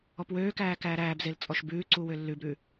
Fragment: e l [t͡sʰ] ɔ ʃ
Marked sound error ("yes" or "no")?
yes